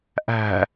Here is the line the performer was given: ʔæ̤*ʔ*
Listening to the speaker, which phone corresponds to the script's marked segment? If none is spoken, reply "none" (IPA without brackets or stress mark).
none